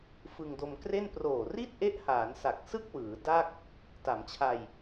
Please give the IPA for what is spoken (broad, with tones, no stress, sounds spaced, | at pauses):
f ɯ˧ ŋ d o˧ m k r e˥˩ n p r oː˨˩ r i˥˩ t̚ ʔ e˦˥ ʔ h aː˩˦ n s a˨˩ k̚ s ɯ˥˩ k̚ w ɯː˩˦ d a˥˩ k̚ | t a˩˦ m t͡ɕʰ a˧ j